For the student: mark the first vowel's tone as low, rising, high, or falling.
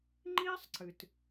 high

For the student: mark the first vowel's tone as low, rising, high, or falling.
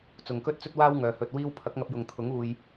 low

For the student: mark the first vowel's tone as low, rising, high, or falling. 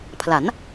rising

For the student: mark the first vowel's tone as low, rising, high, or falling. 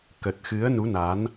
low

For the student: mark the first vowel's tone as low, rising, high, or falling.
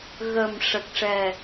low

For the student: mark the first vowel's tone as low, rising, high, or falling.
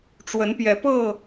rising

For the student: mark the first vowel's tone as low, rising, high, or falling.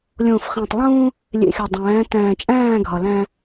low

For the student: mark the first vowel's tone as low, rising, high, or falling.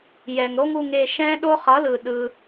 low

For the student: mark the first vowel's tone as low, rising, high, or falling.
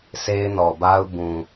high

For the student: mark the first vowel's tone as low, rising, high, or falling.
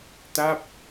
falling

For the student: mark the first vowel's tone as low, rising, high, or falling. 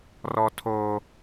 high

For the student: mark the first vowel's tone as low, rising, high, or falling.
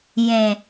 low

